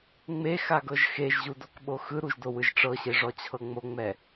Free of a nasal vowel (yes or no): yes